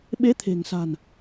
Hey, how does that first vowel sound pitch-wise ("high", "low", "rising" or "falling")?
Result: rising